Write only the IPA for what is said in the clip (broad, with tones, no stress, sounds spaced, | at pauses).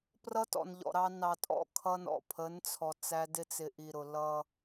p r ʌ˦ t ɔ̰˨ n ʎ ɔ̰˨ ɾ ɑ˦ n ɑ˨ tʼ ɔ̰˦˨ kʰ ʌ˦ n ɔ̰˨ pʰ ə˨˦ n t͡sʰ ɔ˨ t͡s æ˦ d ɪ˦ t͡s ɪ˨ ʔ i˨ ɾ ʊ˨ l ʌ˦